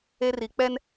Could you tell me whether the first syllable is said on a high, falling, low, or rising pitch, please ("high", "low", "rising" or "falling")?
high